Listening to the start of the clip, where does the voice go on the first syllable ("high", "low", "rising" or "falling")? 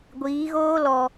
rising